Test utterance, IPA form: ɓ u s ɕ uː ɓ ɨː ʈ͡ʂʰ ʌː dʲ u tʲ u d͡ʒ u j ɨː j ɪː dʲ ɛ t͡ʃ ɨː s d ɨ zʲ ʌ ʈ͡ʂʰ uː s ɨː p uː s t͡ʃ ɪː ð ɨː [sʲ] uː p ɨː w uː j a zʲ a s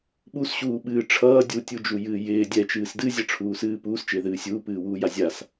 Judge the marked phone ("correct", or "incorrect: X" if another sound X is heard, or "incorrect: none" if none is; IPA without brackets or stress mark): correct